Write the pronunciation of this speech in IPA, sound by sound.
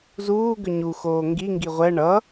z uː ɡ ʏ ɲ u x oː ŋ ɡ i ŋ ɡ i ʁʷ ɛ ɳ ʌ

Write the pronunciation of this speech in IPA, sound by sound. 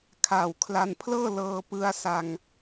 kʰ aː˨˩ w kʰ l a˧ n pʰ l ɤː˥˩ l ɤː˧ p ɯ˧ a̯ s a˧ ŋ

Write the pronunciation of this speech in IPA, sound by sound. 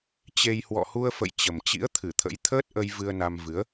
t͡ɕ e˧ j h w ɔ̰˧˨ h u˧ ə̯ f ə̰˧˨ j t͡ɕ ə˨˩ m t͡ɕ ḭ˧˥ ə̯ t̪ʰ ɨ˧˩ t̪ʰ ə̰˧˥ j t̪ʰ əː˦˥ t̚ ʔ ə˧ j v ɨ˧ ə̯ n a˧ m v ɨ˨˦ ə̯

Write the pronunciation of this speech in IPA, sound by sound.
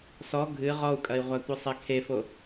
s ɔ ɡʱ ɨ ʁ ɔ u̯ kʼ ɐ i̯ ʁʷ a tʷ ɨ sˤ e kʰ e f o

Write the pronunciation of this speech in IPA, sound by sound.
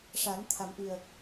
ʂ a˨˩˦ n t̪ʰ a˨˩˦ m ʔ i˨˩ ə̯

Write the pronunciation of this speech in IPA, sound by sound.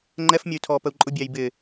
ŋ͡ǃ ɛ f mʲ ʌ y̯ tʰ ɔː p ə u̯ ǃʼ ʊ bʲ æ j b ɪ

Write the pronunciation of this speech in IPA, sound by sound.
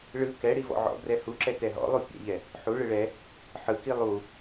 ɭ ɯ k ɛ ɽ i v ɔ̰ ʕ ɔ̰ b r ɛ h u ǁ ɛ t ɛ ɦ ɔ̰ lˠ u pʲ ɛ̰ ʎ ɛ | ħ u ɭ ɯ ɭ ɛ | ħ ɯ k i lˠ u

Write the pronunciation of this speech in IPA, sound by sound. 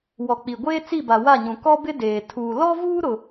w ɔ˨ k͡p i˨ ɡʷ eː˦ t͡s i˦˨ b a˨ w a˦˨ ɲ ũ˨ k ɔ˦ b ɪ˦ d eː˨ tʰ uː˨ l ɔ˦ v uː˦ ɾ ʊ˦

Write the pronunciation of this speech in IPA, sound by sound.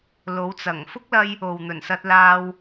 l o˨˧ w t͡s ɐ˨˩ ŋ f ʊ˥ k̚ l ɐ˧ j | o˨ w n̪ ɵ˨˩ n s ɐ˧ t̚ l aː˧ w

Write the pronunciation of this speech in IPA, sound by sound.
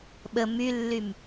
ɓ ə m y lː y m

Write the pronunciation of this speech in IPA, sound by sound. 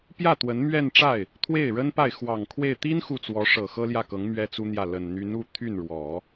p j ä˥˩ t̪ w ə˧˥ n m ɥ ɛ˥˧ n ʈ͡ʂ a˥˩ ɪ̯ | t̪ʰ w e˥˩ ɪ̯ ɻ ə˥ n p a˥˩ ɪ̯ x w ɑ˨˩ ŋ kʰ w e˥˩ ɪ̯ t̪ i˥ n x u˥˩ t͡s w ɔ˧˥ ʂ ɤ˨˩ x ɤ˥ l j ä˥˩ k ɤ˧˥ ŋ m ɥ ɛ˥ t͡s u˥ n̪ j ä˥˩ l ə˨˩ n n̪ y˧˥ n u˥˧ t̪ʰ y˥˩ n ɻ w ɔ˨˩˦

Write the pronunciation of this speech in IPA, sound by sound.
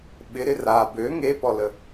ɓ ɪ ɾ ɪ r a b ø ŋ e p ɔ l ə

